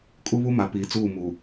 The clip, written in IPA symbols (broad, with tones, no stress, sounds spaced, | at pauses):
kʼ u˦ β u˦ m a˨ p iː˨ t͡s uː˦˨ m uː˨